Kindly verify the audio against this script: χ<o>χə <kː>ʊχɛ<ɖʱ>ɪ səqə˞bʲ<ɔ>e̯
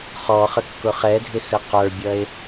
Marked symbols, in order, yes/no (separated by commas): no, yes, no, no